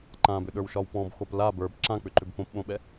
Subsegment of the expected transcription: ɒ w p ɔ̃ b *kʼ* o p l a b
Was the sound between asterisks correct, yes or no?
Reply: no